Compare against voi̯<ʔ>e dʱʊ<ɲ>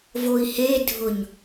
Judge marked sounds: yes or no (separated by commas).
no, yes